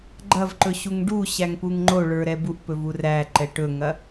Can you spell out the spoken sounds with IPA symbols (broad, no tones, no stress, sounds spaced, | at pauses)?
ɡ͡ǃ ɐ v ǃ ɵ ɕ u ŋ ɖ u ɕ æ ŋ p u ŋ ŋ͡ǃ o ɭ ə˞ ɾ ɛ b u ʔ p ɵ v u r æ ǃ ɛ ʈ ɵ ŋ ɐ